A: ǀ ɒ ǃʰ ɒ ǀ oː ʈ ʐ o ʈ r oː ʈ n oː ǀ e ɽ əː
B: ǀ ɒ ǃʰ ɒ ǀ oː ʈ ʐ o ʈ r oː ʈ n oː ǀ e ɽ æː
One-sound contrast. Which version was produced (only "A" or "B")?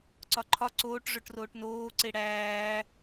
B